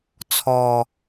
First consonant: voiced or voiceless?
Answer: voiceless